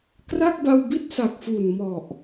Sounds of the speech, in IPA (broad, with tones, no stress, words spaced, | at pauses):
kra˥˩k̚ba˧wbi˥˩t̚ sa˨˩k̚fu˨˩n mɔ˨˩ʔ